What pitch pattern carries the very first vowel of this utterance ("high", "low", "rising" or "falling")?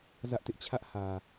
high